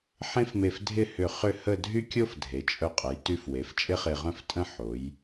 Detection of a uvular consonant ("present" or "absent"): present